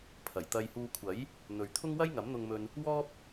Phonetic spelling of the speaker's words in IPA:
pʰ ɐ˨˩ j t̪ ɐ˧ j h uː˧ kʷʰ ɐ˨˥ j | n̪ ɵ˨ ɥ t̪ʰ ʊ˥ ŋ w ɐ˥ j ŋ ɐ˨˥ m n̪ ʊ˧ ŋ m ɵ˧ n | w ɔː˥ p̚

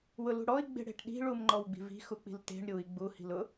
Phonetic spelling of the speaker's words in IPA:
w ʊ l ṳ ɽ ɔ i̯ ɡ͡b e̤ ɽ e̤ ʈ ɗ i̤ ɭ u m ŋ͡ǃ ɔ w ɡ͡b i̤ v i̤ x u k͡p i̤ l t e̤ ɳ ɾʲ u i̯ ɡ͡b u h i̤ l ʊ

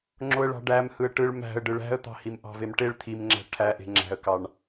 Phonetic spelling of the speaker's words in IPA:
ŋ͡ǁ o ə̯ ɭ ɑ̤ ɖ æ m h ɯ ə̯ ʈ ɯ ɭ m æ̤ ə̯ ɖ ɯ ɭ æ̤ ə̯ t̪ ɑ̤ h i m ʔ ɑ̤ v e m ʈ e ɭ t̪ʰ i m ŋ͡ǁ æ̤ ʈʰ æ ʔ e̤ ŋ͡ǁ æ̤ ə̯ k ɑ ɳ

